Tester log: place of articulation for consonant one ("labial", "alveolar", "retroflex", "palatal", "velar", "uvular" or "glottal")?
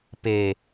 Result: labial